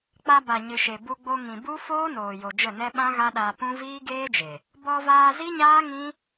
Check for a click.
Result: absent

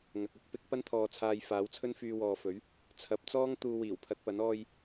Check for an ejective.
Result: absent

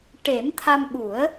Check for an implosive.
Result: present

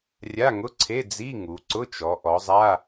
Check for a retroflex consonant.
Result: absent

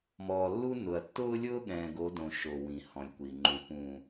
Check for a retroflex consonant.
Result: absent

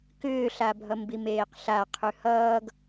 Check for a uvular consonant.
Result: present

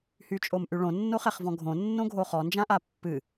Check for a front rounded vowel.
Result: present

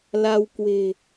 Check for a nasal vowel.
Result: absent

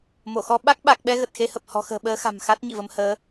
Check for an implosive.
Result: present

